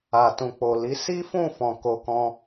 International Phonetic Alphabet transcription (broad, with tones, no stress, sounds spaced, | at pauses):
a˨ t ũ˨ k͡p o˨ l i˨˦ s i˦ f ũ˦˨ f ɔ̃˨ k o˧ k ɔ̃˧